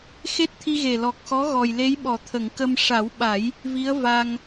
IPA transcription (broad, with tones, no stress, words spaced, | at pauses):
xe˦˥t̚t̪ʰi˧ɣe˨˩ lɔ˨˩k̚xɔ˧˥ ɣɔ˨˩jle˧˥jɓɔ˨˩˨ t̪ʰə˨˩˨ŋkə˧m ʂa˨˩˦wɓa˨˩˦j | vi˧˥ə̯va˧ŋ